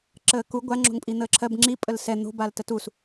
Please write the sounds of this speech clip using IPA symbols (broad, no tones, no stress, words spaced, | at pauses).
ǁəːku ɡʷa ŋ͡ǁo̤ŋpʼin̪əːǁʰɜb ŋ͡ǁi pʼəlsɛ n̪o̤bal tətus